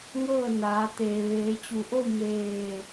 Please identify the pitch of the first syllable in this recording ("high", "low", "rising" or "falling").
falling